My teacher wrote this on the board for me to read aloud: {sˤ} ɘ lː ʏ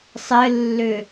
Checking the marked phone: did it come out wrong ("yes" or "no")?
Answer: no